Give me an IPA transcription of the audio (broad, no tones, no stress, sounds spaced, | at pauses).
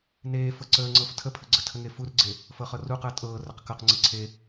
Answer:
n eː f ɤ ǀ əː ŋ͡ǀ ɤ f tʰ ə pʰ ə ɡ͡ǀ ə tʰ ə ŋ e f u r ɡ͡ǀ e | f ɤ χ ɤ r u q əː tʼ ɤː r ə q k ɤ q ŋ͡ǀ e ǀʰ e